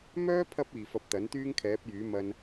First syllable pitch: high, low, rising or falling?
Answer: high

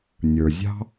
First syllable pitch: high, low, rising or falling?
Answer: low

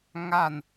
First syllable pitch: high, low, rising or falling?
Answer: falling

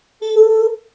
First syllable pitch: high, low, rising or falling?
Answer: high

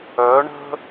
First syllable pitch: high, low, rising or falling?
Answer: rising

